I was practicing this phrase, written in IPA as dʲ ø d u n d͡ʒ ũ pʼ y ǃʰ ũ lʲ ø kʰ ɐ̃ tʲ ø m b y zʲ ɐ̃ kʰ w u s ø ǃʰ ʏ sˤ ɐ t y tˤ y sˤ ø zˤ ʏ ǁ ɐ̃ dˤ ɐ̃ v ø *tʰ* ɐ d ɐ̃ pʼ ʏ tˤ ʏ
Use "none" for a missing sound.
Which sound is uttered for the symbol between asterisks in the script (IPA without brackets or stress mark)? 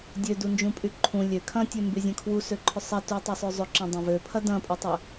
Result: pʰ